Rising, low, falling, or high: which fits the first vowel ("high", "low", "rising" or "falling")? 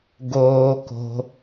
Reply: low